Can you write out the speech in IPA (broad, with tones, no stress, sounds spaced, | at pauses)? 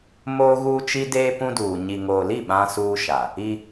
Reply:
m oː˦ ɣ uː˦ t͡ʃ i˦ d eː˦ p ũ˦ d uː˨ ɲ i˨ ŋ oː˨ l i˦˨ ɓ ã˦ s uː˦ ʃ a˨ | i˦